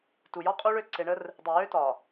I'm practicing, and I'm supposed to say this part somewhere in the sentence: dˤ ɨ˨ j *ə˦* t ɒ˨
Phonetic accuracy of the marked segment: incorrect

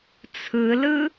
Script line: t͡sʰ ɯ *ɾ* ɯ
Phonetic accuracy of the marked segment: incorrect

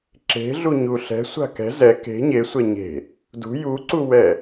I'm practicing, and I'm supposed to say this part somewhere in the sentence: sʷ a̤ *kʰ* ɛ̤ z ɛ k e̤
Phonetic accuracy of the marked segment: incorrect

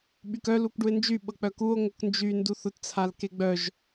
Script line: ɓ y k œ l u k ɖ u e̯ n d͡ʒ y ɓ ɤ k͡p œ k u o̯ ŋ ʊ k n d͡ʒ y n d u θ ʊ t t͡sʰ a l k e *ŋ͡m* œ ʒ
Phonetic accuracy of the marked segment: incorrect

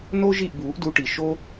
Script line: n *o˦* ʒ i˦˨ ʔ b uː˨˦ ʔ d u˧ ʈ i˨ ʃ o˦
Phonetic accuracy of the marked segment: correct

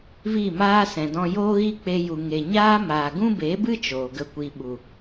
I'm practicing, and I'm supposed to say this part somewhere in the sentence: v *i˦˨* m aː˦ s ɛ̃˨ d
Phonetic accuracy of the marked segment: correct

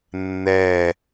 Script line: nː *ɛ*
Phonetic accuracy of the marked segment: correct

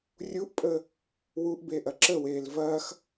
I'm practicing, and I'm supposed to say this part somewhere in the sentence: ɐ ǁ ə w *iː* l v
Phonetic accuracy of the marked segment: incorrect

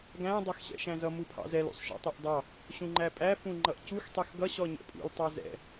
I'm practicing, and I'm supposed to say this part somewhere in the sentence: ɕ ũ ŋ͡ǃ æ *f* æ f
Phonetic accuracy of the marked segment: incorrect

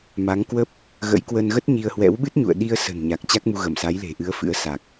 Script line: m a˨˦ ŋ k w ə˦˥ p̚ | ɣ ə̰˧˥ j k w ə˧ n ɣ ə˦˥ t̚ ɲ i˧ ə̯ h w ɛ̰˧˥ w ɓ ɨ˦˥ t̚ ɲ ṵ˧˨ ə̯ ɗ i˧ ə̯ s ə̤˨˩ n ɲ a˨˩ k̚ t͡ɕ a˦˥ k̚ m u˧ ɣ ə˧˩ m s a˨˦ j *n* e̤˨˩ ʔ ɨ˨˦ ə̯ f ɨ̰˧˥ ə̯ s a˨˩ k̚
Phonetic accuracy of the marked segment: incorrect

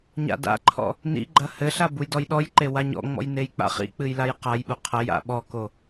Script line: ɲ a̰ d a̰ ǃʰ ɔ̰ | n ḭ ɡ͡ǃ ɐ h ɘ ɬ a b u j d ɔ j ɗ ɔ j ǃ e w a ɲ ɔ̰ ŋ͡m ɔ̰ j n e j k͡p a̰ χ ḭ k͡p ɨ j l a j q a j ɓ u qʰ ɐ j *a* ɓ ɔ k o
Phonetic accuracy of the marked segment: incorrect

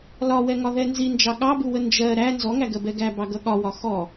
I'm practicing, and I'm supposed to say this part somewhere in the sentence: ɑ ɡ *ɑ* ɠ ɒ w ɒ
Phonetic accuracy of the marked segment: incorrect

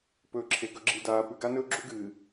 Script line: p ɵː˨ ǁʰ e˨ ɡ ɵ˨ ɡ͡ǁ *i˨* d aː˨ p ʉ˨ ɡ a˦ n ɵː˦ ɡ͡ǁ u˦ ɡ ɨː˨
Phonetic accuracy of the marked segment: correct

